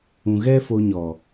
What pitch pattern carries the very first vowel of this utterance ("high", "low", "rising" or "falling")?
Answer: low